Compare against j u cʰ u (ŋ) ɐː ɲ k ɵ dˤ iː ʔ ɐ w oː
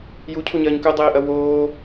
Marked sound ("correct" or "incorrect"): incorrect